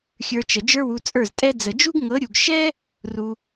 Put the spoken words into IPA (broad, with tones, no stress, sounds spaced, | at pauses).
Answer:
xʲ ə˞˧ t͡ʃ ə˨ d͡ʒ ə˞˦ w u˧ t͡sʼ ə˞˦˨ z tʼ ɛ˦ d͡z ə˨ d͡ʒ u˦ ɡ ŋ ɤ˨˦ ɾʲ u˨ ɡ ʃ ɛ˦ | r u˧